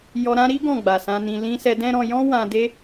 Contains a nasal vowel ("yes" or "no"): yes